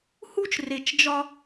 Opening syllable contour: high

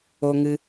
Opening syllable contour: high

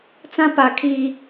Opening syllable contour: high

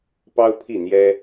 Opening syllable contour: high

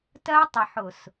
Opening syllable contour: high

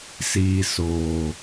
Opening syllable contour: low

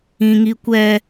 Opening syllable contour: high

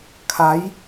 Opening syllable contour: rising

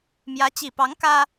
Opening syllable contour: rising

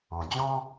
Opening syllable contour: low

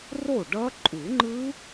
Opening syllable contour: falling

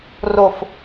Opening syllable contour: low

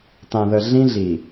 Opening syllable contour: low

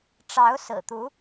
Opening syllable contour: rising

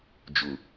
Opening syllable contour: low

